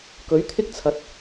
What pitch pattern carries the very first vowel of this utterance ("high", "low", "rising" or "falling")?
rising